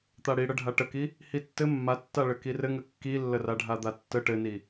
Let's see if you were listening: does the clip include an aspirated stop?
no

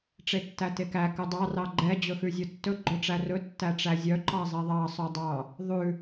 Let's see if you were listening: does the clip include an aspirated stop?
no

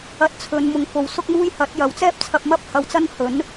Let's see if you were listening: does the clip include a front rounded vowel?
no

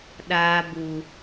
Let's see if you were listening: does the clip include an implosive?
yes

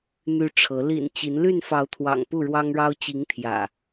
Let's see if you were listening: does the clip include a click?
no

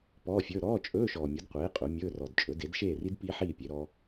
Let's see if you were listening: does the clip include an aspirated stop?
no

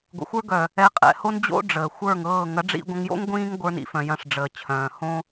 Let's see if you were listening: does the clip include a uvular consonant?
yes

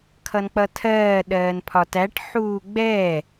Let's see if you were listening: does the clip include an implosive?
yes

